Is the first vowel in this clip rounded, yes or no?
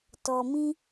yes